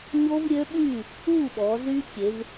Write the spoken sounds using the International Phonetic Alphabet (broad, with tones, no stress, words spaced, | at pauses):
ɲo˦˥vɾʲø˦˥ɓyː˥˨ | uː˥˨ɓɔː˩˧zyː˦˥ kʲe˩˧v